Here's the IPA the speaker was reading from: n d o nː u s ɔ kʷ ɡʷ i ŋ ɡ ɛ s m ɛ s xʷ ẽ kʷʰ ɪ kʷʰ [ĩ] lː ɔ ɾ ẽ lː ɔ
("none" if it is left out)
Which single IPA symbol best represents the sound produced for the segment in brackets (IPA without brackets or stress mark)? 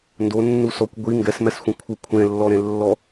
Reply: ẽ